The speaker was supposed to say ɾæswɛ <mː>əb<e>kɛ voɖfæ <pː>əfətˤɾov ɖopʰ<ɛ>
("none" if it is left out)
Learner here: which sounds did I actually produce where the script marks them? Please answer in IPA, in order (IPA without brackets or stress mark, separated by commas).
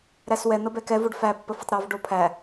n̪, ɛ, pː, æ